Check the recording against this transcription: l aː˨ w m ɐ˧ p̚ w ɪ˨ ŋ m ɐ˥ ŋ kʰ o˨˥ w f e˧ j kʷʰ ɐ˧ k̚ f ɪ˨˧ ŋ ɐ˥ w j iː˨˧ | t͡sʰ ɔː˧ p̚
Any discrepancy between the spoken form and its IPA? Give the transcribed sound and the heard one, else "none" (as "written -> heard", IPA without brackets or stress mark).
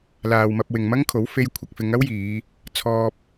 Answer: none